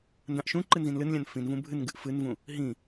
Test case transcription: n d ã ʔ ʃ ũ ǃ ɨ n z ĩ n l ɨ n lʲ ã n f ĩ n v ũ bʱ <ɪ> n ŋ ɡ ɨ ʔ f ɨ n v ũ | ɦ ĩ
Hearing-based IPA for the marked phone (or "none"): ɨ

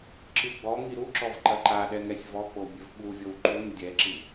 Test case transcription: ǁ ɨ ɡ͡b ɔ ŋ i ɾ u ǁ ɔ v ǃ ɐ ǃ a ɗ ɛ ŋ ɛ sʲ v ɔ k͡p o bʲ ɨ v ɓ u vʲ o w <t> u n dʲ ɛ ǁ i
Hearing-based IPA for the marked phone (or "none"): ǃ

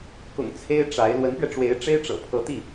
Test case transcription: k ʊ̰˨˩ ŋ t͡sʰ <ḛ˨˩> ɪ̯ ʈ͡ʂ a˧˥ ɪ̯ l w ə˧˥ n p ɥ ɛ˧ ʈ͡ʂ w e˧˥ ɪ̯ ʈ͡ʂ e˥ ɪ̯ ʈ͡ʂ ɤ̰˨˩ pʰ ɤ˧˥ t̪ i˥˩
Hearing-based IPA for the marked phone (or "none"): e˥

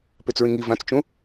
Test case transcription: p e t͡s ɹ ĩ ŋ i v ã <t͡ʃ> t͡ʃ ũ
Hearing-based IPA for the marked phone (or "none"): t͡s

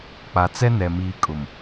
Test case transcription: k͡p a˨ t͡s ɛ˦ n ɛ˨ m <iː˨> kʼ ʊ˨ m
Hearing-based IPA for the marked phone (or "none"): iː˨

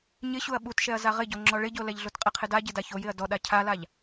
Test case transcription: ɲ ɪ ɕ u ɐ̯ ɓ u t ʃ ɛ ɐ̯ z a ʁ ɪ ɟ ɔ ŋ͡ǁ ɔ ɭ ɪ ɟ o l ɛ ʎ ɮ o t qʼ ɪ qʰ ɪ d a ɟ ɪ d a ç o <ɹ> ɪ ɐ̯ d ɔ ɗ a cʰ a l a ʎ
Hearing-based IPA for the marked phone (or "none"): j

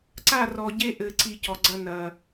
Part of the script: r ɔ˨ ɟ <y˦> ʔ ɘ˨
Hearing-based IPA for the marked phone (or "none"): e˦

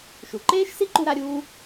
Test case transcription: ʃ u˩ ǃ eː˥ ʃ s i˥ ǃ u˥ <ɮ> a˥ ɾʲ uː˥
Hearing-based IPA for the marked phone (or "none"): ɾ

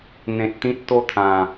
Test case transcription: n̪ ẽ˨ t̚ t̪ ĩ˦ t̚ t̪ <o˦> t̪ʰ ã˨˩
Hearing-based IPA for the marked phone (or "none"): o˦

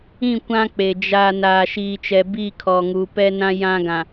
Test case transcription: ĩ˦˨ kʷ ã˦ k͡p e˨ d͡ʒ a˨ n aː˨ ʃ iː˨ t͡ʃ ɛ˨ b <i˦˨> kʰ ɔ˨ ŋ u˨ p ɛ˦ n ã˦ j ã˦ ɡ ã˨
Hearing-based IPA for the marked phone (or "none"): i˦˨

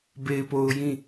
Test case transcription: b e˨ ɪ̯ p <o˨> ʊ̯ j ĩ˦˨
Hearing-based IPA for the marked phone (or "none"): o˨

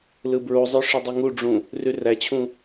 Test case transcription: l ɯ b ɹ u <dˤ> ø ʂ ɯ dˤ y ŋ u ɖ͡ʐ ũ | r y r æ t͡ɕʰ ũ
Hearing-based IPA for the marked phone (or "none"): zˤ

